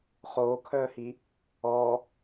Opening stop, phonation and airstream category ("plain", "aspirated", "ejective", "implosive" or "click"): aspirated